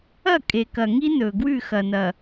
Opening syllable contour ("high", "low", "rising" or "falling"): falling